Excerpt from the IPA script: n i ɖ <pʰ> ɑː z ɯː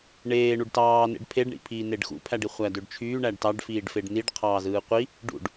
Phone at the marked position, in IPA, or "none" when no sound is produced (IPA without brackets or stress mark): qʰ